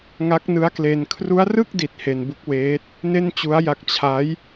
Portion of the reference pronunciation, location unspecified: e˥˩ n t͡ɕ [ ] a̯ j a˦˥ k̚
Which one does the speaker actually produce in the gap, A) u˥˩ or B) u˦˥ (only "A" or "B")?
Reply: B